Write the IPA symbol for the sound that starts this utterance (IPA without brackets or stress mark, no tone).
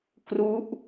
k